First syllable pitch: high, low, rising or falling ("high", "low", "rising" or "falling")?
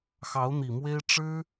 rising